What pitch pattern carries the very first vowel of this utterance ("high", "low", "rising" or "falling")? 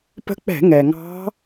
rising